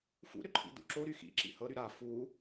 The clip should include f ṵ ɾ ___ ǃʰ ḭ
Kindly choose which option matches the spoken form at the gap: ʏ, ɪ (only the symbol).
ʏ